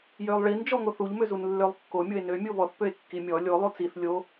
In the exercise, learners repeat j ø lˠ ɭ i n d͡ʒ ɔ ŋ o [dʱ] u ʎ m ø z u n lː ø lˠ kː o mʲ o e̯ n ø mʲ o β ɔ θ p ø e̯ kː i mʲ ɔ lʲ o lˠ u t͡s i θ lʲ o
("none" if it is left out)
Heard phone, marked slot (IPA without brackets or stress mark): θ